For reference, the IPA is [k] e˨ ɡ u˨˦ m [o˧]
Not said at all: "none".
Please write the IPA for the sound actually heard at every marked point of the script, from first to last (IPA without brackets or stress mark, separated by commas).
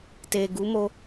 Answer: t, o˧